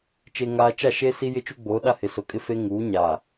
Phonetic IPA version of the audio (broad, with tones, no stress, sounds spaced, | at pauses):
t͡ʃ e˨ ŋ aː˨ t͡ʃ a˦˨ ʃ eː˦ s i˦ j ɪ˦ t͡ʃ u˦ ɡ͡b oː˨˦ ɗ a˦ h ɪ˨ s o˨ kʼ ɪ˦ f e˦ ŋ uː˨˦ ɲ aː˨